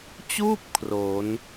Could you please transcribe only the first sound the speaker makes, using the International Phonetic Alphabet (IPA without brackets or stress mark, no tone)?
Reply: t͡ɕ